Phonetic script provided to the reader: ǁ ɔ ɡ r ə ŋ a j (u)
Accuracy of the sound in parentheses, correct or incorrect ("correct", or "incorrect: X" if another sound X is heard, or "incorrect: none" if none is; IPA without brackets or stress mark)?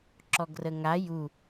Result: correct